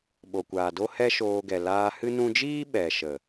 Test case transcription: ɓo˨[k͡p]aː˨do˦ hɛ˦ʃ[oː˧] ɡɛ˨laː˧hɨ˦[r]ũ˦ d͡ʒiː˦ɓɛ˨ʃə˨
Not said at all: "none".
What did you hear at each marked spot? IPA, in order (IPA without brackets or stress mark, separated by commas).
kʷ, oː˧, n